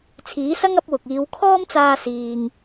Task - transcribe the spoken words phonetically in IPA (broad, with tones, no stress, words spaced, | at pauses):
t͡sʰiː˨˥sɐ˥ŋɐ˨˥p̚wʊ˨k̚ iː˨˧wkʰɔː˥mt͡saː˧ siː˨ŋ